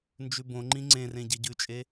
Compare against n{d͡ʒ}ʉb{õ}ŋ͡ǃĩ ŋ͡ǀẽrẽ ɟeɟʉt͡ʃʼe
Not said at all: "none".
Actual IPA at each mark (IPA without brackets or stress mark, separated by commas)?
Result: d͡ʒ, õ